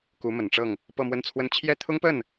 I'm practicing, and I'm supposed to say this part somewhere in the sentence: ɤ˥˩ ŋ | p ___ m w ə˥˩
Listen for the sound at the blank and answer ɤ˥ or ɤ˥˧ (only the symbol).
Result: ɤ˥˧